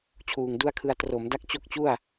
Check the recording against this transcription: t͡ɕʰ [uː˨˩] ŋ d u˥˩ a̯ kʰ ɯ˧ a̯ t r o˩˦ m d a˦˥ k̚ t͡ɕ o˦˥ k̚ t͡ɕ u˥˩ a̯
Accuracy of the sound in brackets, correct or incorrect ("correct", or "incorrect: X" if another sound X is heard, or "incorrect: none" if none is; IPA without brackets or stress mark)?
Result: correct